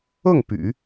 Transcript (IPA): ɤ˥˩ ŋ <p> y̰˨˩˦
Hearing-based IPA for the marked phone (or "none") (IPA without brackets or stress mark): p